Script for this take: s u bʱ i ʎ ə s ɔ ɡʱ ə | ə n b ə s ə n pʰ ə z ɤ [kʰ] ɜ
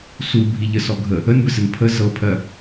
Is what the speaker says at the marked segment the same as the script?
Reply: no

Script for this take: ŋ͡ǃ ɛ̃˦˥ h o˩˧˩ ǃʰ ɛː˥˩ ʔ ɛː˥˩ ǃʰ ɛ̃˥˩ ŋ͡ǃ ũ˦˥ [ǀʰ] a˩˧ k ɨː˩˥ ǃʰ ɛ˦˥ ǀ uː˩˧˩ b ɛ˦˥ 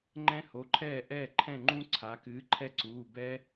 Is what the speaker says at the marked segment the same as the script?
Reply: yes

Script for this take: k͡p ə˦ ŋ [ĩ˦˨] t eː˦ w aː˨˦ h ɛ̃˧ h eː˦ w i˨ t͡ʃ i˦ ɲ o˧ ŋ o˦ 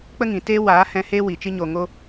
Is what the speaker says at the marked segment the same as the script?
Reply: no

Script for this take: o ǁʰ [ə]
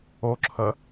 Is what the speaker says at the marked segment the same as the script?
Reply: yes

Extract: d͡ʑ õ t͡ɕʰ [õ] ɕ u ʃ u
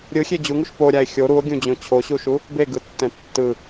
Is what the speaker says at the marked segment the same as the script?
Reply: no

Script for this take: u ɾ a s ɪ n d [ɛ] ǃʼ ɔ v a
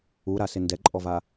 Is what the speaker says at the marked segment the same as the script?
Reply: yes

